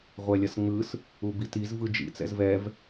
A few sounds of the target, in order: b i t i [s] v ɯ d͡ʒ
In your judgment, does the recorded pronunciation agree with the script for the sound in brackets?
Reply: no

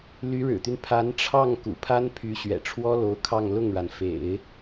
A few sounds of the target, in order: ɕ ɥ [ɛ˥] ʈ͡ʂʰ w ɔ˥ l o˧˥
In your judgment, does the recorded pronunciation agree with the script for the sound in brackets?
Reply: no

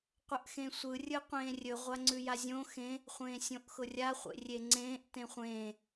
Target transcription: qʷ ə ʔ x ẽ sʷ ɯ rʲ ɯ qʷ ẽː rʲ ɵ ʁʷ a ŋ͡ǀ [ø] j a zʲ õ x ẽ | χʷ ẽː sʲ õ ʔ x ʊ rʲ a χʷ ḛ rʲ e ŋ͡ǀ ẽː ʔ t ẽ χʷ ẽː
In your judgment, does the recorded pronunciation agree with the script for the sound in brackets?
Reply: no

